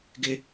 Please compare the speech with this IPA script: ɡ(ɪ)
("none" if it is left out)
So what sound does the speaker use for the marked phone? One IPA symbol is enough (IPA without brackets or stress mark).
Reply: ɪ